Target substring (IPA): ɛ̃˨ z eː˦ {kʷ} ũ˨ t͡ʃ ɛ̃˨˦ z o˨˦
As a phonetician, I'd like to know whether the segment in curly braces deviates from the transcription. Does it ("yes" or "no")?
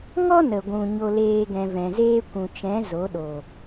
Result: no